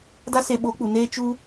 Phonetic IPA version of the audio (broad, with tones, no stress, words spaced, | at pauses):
da˦se˧ɓoː˨˦k͡pu˨ neː˧t͡ʃu˧